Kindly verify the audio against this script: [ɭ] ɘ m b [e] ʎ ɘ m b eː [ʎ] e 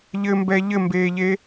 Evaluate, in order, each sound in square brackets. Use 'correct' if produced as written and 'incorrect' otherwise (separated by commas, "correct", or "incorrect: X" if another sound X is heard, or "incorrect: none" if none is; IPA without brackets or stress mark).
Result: incorrect: ʎ, incorrect: ɛ, correct